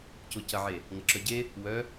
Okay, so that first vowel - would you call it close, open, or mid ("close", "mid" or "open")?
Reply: close